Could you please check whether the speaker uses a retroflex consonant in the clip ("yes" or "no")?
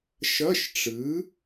yes